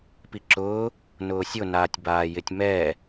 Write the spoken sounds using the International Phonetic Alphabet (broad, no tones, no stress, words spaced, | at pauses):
piǁʊː | nʊːsʲʊnaːtʲ baːjɪtʲmɛ